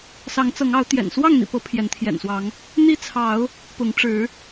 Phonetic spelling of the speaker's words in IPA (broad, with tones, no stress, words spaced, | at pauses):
sɑ˨˦ŋt͡sɤ˨˦ŋɑ˨˦ʊ̯ t̪jɛ̰˨˩n swɑ˥˨ŋn̪ḭ˨˩pɤ˨˦ pʰjɛ˨˦nt̪ʰjɛ̰˨˩nswɑ˨˦ŋ | n̪i˦t͡sʰɑ˨˦ʊ̯ | pʊ˨˦ŋʈ͡ʂɻ̩˨˦